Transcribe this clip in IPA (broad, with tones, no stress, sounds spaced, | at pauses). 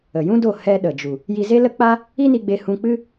ə˨ j ũ˦ d o˦˨ h ɛ˧ ɗ ə˨ d͡ʒ u˨ | j i˧ z e˦ l ə˦ k͡p a˦ | i˦ n i˧ ɡ͡b e˧ h ũ˧ k͡p ɨ˦